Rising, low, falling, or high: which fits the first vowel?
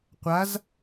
rising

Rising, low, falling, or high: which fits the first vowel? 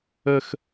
low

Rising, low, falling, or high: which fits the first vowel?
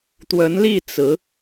rising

